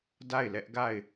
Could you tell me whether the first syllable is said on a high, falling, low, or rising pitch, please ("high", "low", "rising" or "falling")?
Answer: falling